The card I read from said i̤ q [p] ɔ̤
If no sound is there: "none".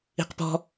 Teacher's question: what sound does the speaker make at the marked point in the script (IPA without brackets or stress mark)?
p